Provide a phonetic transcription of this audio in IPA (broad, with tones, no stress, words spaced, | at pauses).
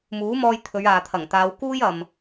muː˨˥mɔː˧j t̪ʰɵ˨˧ɥaː˨t̪ʰɐ˨˩ŋ t̪aː˨˧wkuː˥jɐ˨m